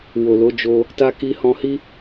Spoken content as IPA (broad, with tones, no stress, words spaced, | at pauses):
wo˨lo˨˦d͡ʒo˧ | ta˧ ki˧hɔ̃˧hi˦